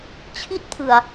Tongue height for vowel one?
high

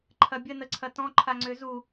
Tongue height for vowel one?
low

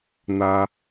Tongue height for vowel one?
low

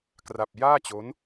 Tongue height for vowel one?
low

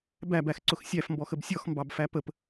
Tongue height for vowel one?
low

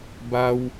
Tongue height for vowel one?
low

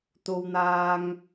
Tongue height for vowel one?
mid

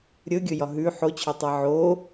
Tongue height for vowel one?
mid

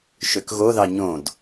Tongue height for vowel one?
mid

